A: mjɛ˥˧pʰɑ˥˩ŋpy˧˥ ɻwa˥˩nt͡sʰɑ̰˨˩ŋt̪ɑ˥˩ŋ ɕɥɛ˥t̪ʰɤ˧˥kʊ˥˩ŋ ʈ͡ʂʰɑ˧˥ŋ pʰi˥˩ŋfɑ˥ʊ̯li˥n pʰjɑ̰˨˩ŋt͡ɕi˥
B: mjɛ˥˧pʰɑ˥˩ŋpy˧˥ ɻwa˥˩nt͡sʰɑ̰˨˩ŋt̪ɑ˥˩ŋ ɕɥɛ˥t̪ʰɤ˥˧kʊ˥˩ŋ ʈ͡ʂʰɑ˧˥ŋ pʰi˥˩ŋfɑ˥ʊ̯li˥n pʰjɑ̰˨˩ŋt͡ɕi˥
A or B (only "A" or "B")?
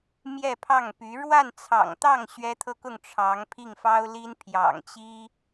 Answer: B